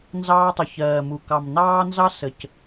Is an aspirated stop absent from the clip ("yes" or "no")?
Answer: yes